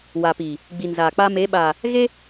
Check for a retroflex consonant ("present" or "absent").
absent